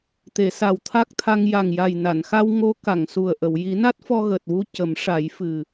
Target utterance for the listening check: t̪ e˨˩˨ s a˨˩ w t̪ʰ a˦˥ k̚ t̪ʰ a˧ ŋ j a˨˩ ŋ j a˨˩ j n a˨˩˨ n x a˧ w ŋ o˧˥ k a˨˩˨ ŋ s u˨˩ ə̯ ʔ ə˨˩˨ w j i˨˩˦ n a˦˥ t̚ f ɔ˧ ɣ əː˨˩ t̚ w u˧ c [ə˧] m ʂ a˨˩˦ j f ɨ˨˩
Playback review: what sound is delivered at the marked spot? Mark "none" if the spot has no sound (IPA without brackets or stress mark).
ə˨˩˦